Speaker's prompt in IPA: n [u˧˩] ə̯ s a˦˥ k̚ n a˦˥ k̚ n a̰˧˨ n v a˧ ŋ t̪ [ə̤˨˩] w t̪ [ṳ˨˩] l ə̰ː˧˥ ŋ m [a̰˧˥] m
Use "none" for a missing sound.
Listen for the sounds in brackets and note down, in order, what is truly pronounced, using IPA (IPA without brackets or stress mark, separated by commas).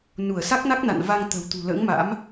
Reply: u˧˩, ə̤˨˩, ṳ˨˩, a̰˧˥